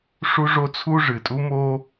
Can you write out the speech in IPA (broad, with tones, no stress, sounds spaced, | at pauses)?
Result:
ʂ u˦ ʐ o˦ t͡sʰ u˦ ʐ ɨ˨˩ tʼ u˦ m o˦